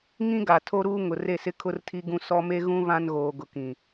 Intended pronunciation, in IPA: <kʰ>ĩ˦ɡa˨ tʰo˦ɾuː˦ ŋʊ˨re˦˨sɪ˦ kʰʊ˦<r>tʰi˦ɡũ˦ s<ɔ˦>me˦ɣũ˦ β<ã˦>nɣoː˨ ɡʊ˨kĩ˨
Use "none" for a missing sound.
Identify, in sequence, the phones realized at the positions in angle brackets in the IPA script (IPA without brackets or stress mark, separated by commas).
ŋ, r, ɔ˦, ã˦